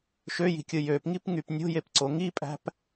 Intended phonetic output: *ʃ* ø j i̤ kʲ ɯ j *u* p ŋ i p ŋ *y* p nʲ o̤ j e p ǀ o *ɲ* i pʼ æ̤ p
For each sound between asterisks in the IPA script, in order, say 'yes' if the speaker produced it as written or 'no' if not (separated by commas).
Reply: yes, no, yes, no